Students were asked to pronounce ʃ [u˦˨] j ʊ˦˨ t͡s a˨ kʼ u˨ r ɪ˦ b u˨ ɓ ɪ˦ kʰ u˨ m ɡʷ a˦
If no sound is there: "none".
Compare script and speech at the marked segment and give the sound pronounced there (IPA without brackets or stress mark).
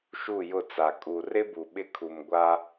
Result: u˦˨